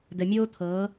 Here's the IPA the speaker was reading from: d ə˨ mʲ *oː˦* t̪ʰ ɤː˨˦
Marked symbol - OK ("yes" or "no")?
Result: yes